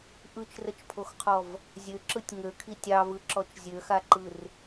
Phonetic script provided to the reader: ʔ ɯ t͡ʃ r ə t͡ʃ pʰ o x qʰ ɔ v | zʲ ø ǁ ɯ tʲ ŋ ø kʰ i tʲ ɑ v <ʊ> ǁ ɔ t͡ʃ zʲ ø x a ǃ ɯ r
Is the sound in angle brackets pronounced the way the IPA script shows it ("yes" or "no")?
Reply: no